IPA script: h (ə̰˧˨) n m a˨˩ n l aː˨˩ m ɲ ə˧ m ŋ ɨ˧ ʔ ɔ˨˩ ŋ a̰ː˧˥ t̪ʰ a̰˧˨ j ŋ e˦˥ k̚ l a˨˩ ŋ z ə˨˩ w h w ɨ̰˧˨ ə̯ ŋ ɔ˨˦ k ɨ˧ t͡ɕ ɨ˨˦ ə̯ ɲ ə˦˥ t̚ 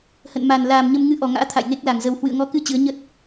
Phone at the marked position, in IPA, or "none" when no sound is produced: ə̰˧˨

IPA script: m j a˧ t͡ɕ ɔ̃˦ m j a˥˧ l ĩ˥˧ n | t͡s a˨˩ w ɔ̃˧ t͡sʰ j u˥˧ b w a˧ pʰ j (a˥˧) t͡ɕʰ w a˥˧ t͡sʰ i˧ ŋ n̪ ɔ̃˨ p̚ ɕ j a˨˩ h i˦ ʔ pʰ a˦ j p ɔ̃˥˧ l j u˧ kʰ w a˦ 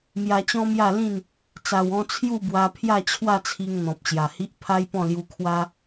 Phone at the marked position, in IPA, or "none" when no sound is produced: a˥˧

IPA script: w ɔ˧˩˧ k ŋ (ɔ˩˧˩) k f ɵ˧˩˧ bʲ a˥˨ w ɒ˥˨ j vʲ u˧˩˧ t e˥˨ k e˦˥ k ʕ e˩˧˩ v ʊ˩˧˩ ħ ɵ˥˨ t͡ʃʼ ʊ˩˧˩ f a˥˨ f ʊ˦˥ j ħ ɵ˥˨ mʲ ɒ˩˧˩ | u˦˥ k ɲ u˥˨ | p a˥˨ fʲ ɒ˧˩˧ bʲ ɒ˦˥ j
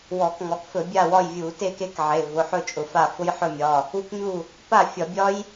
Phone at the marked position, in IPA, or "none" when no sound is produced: ɔ˩˧˩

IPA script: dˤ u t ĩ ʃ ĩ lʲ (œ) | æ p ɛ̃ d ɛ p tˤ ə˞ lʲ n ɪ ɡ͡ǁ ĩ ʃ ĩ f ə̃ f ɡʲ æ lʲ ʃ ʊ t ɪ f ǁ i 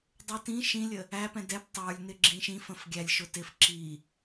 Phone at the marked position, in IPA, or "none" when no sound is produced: ə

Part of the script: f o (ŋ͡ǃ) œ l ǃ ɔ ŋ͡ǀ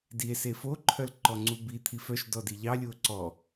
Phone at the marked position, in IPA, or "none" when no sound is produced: ǃʰ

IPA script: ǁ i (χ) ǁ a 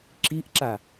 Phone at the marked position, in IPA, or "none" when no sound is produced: ʔ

